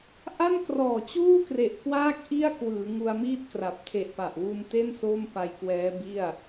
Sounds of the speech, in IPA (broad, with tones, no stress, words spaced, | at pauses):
ʔa˥˩nkrɔː˨˩t͡ɕuː˥˩ kre˨˩ʔkwaː˦˥k̚ ʔi˥˩a̯kwɯː˩˦ŋu˧a̯ miː˥˩t̚kra˨˩p̚ tʰe˨˩ʔpa˨˩ʔwu˧n te˥˩n so˥˩mpa˧j kwɛː˦˥bi˥˩a̯